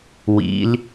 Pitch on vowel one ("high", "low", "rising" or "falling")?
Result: rising